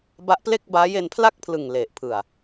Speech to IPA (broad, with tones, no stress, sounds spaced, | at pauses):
b a˦˥ ʔ p l e˥˩ k̚ b aː˦˥ j e˧ n pʰ l a˥˩ k̚ pʰ l ɯ˨˩ ŋ l e˨˩ ʔ pʰ ɯ˨˩ a̯